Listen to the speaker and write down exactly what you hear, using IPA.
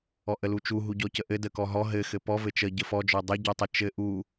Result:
ɔ ʔ ə l u t͡ʃ u ɦ u ɟ ɔ c ə ʔ ɘ d ə k ɔ ɦ ɔ ɦ ɘ x ɘ p ɔ v ɘ t͡ʃ ə ɟ ə f ɔ d͡ʒ ɔ dˤ ɘ ɟ ɔ tˤ ə t͡ʃ ɘ ʔ u

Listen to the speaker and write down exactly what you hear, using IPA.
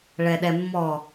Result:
ɭ ɛ ɗ ɛ mː ɔ

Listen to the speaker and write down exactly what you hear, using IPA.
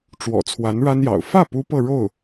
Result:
ʈ͡ʂ w ɔ̰˨˩ t͡sʰ w a˧˥ n ɻ a˥ n j ɑ̰˨˩ ʊ̯ f ä˥˩ p u˥ p ɤ˥˧ ɻ o˥˩ ʊ̯

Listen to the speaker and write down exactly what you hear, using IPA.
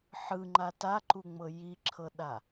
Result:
ħ ɯ ŋ͡ǃ a t a ǃ u ŋ͡m ɤ j i ǁʰ ɤ ɗ a

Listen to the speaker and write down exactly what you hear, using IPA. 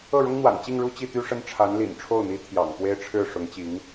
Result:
ɤ˥˩ ɻ ʊ˥ ŋ n̪ w a̰˨˩ n t͡ɕ i˥˧ ŋ ɻ u˥˧ t͡ɕ i˥˩ t̪ y˥ ʂ ə˥ n ʈ͡ʂʰ a˧˥ n l ḭ˨˩ n ʈ͡ʂʰ o˥˩ ʊ̯ n̪ i˧˥ t̪ʰ j ɑ̰˨˩ ŋ p w e˥ ɪ̯ ʈ͡ʂʰ ɻ̩˥˩ ʂ ʊ˧˥ ŋ t͡ɕ i˧˥ ŋ

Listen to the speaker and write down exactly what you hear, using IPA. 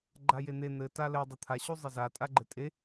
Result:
ɡ͡ǃ a j e n̪ e n̪ ɘ t a l ɘ dˤ u t̪ʰ a ɕ u zˤ ɪ z a tʼ a ɡ͡ǃ ɘ tʼ e

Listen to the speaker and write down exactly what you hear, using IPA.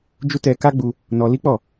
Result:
d͡ʒ u˦ t ɛ˧ k a˦ ɡ͡b u˧ | n ɔ˧ l i˦ k͡p ɔ˦˨

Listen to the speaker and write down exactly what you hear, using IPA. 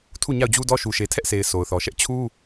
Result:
tʰ u˦˨ ɲ a˦˨ ʊ̯ d͡ʑ u˦ d ɔ˦ ʃ u˨ ʃ e˨ tʰ ɛ˦ ʔ s e˨ ɪ̯ sʰ o˨ ʊ̯ θ ɔ˨ ʃ ɛ˦ ʔ t͡ɕʰ u˦

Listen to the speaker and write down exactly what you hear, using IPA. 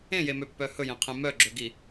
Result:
ẽ j e m ø pː œ h ɵ j ẽ qʰ ẽ m œ ɡ͡ǁ ɵ ɡ i

